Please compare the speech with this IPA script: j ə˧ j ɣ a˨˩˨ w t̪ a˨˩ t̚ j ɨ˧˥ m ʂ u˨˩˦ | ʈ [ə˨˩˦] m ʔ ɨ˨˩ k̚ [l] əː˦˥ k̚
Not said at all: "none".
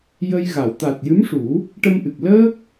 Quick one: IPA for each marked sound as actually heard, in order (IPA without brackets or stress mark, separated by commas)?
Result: ə˧, l